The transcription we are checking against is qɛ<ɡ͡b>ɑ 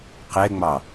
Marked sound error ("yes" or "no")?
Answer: yes